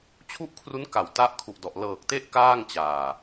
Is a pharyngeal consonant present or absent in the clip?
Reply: absent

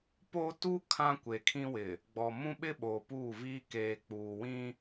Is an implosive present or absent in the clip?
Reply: present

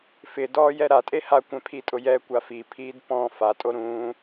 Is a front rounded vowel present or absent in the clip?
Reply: absent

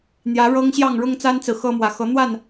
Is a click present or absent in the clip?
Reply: absent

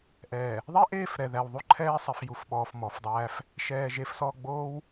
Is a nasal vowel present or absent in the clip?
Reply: absent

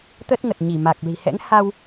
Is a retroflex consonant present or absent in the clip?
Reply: absent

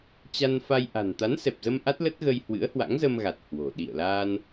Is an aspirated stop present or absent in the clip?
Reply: absent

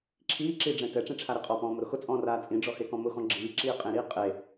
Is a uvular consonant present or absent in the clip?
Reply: present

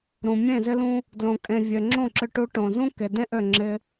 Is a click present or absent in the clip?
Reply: present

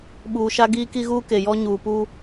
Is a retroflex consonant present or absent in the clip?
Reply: absent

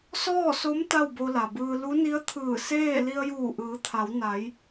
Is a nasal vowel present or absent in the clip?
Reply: absent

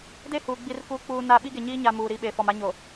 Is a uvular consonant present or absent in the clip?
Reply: absent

